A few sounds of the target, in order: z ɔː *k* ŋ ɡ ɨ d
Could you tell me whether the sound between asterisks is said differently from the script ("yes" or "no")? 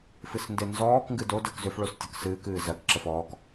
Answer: no